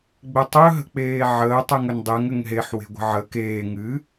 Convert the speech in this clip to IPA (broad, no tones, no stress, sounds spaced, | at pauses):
ɡ͡b ɘ tˤ ɵ ɦ ə̤ k͡p eː ʕ əː tˤ ɨ ŋ ɵ n dˤ e ŋ ɘ ŋ ɦ e ħ w e̤ ɡʷ ə̤ ʕ əː k eː ŋ ɨ